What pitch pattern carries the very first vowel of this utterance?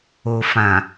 low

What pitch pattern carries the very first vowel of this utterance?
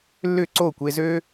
falling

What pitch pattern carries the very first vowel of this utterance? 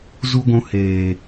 high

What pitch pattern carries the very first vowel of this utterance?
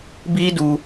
high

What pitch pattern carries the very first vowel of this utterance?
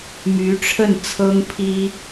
rising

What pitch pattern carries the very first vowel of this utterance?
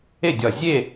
falling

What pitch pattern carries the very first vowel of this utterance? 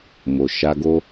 low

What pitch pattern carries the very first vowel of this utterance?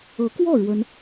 rising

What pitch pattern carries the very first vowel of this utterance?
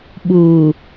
low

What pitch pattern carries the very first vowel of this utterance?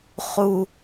high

